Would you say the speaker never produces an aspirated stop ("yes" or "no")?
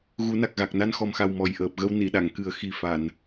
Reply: yes